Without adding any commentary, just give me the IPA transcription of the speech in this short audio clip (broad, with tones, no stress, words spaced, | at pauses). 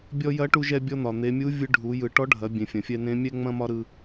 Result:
bʲɔ˧jɐ˧˥ʈu˧ ʒɛ˧bʲɔ˧ n̪ɒ˩ n̪e˩˧mʲu˧˥ vʲɯ˧ɖʱu˩˧ jɯ˩˧ ʈɔ˧˥ɖʱɐ˩˧ bʲẽ˩fʲɐ̃˩fʲɛ˧ nẽ˧˥ mʲɛ˥ŋ͡mɐ̃˥ mɒ˥ɾɯ˧